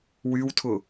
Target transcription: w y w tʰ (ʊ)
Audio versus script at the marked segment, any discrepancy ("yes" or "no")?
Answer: no